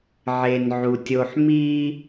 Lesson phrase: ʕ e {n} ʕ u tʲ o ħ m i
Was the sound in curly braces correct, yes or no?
yes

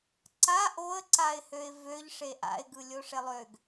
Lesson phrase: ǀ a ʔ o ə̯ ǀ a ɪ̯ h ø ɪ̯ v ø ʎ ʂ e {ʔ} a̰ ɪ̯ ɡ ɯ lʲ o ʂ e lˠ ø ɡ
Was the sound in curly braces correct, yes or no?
yes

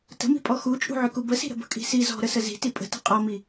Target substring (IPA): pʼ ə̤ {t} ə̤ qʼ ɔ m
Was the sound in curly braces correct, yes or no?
yes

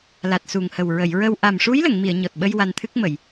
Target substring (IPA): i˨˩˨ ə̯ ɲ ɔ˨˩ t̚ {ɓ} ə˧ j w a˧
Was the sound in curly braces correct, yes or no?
yes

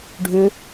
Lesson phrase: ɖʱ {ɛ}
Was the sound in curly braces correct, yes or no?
no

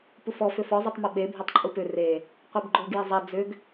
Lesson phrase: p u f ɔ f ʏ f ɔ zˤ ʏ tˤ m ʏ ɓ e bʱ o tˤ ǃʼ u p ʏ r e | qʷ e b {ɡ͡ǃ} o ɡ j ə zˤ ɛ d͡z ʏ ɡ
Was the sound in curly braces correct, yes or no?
yes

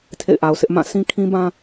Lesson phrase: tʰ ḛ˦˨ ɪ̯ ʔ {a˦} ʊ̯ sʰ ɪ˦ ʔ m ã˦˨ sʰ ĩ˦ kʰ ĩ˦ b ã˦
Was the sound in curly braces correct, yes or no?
no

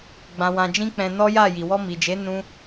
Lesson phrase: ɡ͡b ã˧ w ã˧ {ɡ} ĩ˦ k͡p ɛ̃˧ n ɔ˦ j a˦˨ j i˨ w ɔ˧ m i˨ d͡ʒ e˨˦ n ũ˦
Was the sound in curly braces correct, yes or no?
no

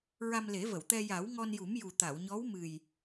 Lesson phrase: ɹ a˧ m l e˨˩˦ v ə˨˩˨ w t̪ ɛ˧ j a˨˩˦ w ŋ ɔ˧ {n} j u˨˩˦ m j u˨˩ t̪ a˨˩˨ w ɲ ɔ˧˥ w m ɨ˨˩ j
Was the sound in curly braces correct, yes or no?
yes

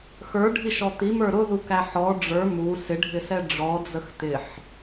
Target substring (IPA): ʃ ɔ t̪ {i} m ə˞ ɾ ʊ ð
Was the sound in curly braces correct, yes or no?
yes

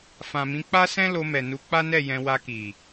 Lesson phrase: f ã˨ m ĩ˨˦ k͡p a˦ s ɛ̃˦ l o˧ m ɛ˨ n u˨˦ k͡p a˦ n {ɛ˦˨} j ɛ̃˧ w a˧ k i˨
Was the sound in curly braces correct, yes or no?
yes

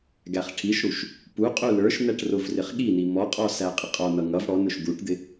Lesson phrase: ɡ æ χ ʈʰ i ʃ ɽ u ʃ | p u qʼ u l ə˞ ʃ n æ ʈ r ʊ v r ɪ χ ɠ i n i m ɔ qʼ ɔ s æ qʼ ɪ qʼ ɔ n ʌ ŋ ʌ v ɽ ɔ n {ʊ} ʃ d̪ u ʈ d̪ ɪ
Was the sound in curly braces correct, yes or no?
yes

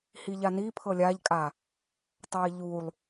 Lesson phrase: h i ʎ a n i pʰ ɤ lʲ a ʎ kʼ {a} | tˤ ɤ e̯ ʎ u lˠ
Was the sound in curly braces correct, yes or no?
yes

